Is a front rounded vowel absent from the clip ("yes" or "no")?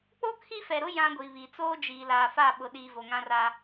yes